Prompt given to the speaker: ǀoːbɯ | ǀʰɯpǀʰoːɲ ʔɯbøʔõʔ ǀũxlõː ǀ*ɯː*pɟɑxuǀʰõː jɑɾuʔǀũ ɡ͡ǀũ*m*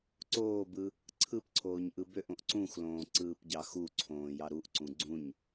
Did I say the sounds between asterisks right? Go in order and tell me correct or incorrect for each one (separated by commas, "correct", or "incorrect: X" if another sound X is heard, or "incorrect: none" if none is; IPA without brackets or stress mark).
correct, incorrect: ɲ